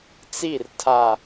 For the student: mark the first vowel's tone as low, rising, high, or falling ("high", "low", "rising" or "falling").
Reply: falling